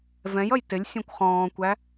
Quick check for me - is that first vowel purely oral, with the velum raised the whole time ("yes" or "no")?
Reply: no